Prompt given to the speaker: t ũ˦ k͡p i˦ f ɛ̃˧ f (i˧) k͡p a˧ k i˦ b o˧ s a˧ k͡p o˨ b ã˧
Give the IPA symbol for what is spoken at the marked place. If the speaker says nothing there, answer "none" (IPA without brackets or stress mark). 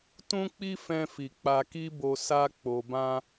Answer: i˨